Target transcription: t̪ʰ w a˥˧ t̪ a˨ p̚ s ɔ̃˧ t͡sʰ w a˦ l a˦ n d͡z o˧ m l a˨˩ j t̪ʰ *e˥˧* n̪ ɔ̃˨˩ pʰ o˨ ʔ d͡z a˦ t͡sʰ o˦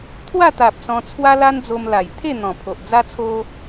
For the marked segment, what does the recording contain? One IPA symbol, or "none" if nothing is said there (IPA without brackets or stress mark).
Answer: e˥˧